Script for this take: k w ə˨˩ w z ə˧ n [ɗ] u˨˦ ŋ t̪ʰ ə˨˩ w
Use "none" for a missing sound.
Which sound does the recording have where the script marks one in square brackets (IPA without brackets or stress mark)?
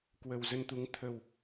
t̪